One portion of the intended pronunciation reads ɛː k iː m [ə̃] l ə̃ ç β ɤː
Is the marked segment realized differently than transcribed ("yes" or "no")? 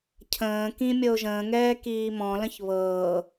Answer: yes